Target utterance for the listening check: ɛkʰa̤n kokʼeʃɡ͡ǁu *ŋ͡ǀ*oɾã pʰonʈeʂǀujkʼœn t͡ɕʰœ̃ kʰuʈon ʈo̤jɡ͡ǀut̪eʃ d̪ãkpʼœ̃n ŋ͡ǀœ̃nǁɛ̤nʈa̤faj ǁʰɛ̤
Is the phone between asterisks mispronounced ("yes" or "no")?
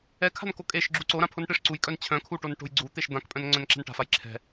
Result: yes